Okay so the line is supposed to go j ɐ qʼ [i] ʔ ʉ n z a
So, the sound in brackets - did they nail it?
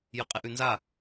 no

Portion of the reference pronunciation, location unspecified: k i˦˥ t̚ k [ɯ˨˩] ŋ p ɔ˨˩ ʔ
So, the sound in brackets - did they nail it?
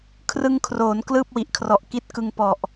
no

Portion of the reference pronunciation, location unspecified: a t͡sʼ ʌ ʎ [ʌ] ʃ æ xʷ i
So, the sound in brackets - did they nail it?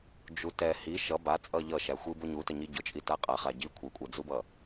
yes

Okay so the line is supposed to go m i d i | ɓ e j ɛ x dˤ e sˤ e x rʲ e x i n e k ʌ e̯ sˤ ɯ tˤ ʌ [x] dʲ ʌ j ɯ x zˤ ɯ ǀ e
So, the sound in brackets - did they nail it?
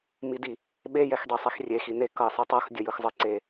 yes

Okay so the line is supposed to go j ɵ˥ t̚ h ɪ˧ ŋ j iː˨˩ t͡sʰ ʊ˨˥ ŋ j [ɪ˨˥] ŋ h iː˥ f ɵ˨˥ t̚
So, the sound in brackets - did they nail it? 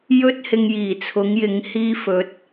yes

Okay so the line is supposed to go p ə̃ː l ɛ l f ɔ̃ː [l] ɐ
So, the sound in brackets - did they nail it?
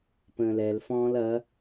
yes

